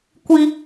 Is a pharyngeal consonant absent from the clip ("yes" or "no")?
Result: yes